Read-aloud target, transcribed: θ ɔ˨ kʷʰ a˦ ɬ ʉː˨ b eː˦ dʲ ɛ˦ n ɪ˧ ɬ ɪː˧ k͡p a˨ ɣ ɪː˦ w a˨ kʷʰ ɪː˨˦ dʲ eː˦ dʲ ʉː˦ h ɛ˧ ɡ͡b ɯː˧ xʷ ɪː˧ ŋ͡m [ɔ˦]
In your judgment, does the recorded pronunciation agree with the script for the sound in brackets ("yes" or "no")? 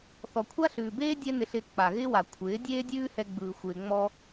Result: no